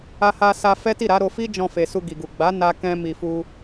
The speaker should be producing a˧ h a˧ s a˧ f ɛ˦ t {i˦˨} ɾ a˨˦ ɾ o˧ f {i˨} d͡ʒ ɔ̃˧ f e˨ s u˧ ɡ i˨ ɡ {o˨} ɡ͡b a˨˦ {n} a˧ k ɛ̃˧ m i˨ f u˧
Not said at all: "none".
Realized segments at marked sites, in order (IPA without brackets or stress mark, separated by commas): i˦˨, i˦, u˨, n